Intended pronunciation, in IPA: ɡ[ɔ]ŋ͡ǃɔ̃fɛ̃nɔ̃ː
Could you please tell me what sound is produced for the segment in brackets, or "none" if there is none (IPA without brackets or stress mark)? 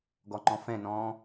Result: ɔ